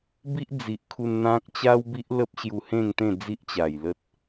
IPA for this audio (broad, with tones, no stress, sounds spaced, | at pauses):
b i˦ ʔ d͡z i˨ ʔ kʰ u˧ n n̪ ã˦ k̚ t͡ɕ a˦ w b i˦ ʔ l ə˦ p̚ ɕ j u˧ h ẽ˥˧ ŋ t̪ ẽ˥˧ d͡z i˦ ʔ t͡ɕ a˨˩ j l ə˦ t̚